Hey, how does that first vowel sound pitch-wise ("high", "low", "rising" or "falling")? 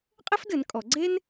high